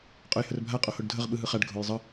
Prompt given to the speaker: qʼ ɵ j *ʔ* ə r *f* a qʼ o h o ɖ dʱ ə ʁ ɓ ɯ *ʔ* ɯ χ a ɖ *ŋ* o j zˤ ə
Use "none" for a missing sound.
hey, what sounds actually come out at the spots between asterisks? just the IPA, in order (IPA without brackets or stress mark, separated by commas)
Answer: h, bʱ, ɦ, ɡʱ